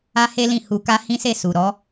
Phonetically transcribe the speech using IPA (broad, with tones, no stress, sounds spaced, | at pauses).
a˦ h e˦ l ĩ˦˨ h u˧ k a˦ h ĩ˦ s e˦˨ s u˨ ɾ ɔ˨˦